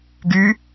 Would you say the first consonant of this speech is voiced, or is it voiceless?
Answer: voiced